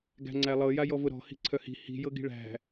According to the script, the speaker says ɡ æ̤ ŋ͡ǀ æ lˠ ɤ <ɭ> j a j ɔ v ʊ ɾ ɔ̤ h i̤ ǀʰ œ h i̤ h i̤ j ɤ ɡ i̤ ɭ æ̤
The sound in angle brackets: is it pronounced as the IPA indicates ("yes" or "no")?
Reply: no